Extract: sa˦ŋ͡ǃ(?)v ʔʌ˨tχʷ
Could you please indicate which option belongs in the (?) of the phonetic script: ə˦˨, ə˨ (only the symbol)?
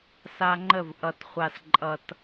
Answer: ə˦˨